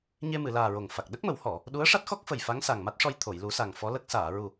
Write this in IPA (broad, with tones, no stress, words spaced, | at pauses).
ɲe˧mɨ˨˩˨laː˨˩ ɹo˨˩ŋ fa˨˩k̚ ɗə˦˥k̚mə˨˩˦whɔ˨˩˨ | ɗu˧˥ə̯ʂa˦˥t̚xɔ˦˥k̚fə˨˩j fa˧˥ŋsa˨˩ŋma˦˥t̚ʂɔ˧j t̪ʰo˨˩˨jlu˨˩˦sa˨˩ŋ fɔ˧˥lə˦˥k̚ saː˨˩˨ɹu˨˩